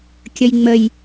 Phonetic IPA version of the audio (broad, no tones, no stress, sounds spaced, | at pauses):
kʲ ə j ŋ͡m ə j